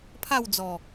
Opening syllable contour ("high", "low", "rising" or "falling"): falling